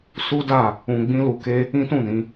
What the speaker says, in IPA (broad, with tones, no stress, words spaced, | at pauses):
su˦da˦˨ | ũ˧ɡ͡bĩ˦ lu˧ke˦ | ĩ˦tũ˦˨nĩ˨˦